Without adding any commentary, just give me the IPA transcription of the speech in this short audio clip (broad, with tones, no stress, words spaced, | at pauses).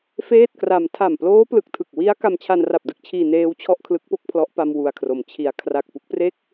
feː˥˩t̚kra˧m tʰa˨˩mploː˦˥plɯ˨˩k̚tʰɯ˨˩k̚ wi˦˥a̯ ka˧mt͡ɕʰa˧nra˨˩p̚ dɯ˦˥k̚t͡ɕʰiː˧ neː˦˥w t͡ɕʰɔ˥˩ʔkʰlɯ˦˥k̚po˥˩k̚pʰlɔ˦˥ʔ pa˧m wu˧a̯kʰro˩˦mt͡ɕʰi˧a̯ kʰra˨˩k̚pu˦˥k̚pre˥˩k̚